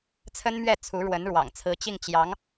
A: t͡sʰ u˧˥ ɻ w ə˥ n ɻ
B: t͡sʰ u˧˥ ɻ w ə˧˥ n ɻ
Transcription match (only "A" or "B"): B